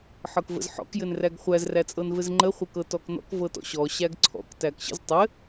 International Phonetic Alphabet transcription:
ħ ɤ k v ə̰ z ħ ɔ̰ k j ɘ n r æ ɡ χʷ æ z r æ t͡sʼ ɤ n v ɘ z ŋ͡ǃ ə χʷ ɘ k ɤ t ɔ k n ɔ̰ k v ɤ t ɔ̰ ɕ ɔ ɕ æ ɡ ǀʰ ɔ̰ k t æ k ɕ ə̰ z tˤ ɘ

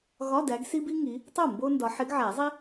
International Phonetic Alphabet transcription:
ɣ ɒ˧˥˧ d æ˨˦ ɡ s i˥ b i˥ ŋ i˨˦ | tˤ o˥˩ m b o˥ n d ɒ˨˦ ħ e˨˦ ɡ ʕ æ˨˩˦ zˤ i˥

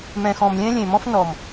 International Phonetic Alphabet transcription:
m ɛ̃˨ x ɔ̃˨ m lʲ ɛ̃˦ lʲ ẽ˨ m ɔ̃˦ f n ɔ˨ m

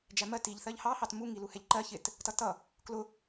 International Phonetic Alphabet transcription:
d͡ʒ æ m ɜ t i ʎ θ ɜ ʎ h ɑ h ɑ t m u ŋ i l u h ɛ ʎ ǃ ɜ ç ɪ t | t ʌ t ʌ | k l ʊ

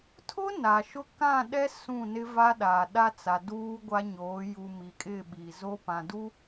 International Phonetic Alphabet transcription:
tʰ ʊ˦ n a˨ ʃ ʊ˦ k ã˦˨ ɗ ɛ˦ s ũ˦˨ n ɪ˦ v a˦ ɗ aː˨ ɗ a˦ t͡s a˨ d uː˦ ɡʷ a˦ ɲ oː˨˦ j u˨ m i˨ kʼ ɪ˦˨ ɓ i˨ z o˦ p ã˨ d u˦

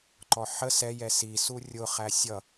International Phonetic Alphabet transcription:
ǃ ɔ ħ ə s ɛ j ɛ s i s u rʲ ʊ χ æ sʲ ʌ

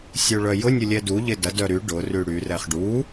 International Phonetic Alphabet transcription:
sʲ u ɭ œ j ʊ nʲ ʊ lʲ ɛ d u ʎ ɪ d ɐ d œ ɾ y ɖ ʊ r y ɽ y r ɛ χ ɖ u

